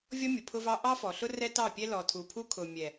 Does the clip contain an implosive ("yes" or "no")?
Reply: no